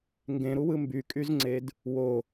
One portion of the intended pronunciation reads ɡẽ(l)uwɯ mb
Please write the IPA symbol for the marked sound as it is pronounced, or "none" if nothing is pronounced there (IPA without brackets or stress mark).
ɾ